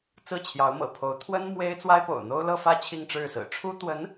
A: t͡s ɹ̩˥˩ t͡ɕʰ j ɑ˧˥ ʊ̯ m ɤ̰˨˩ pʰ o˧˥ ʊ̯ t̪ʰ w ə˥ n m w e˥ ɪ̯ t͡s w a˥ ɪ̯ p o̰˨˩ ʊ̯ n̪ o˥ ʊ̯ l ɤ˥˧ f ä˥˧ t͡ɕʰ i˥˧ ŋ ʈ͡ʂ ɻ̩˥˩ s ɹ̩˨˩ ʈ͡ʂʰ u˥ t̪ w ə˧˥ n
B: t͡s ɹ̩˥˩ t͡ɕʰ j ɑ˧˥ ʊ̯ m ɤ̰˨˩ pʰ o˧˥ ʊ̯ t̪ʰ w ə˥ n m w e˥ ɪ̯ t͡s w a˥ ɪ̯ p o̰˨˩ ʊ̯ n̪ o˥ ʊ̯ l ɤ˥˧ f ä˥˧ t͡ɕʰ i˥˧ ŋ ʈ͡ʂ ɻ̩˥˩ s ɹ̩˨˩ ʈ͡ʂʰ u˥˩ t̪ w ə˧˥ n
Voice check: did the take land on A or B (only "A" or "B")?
A